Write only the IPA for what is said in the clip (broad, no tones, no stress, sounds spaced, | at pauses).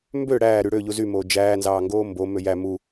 m b ø ɽ æː ɾ y ɽ ø ʎ u z y m oː d͡ʒ æː n z ɑː ŋ ɡ oː m b o m ø j æ m u